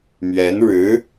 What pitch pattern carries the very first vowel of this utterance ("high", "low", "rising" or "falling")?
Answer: rising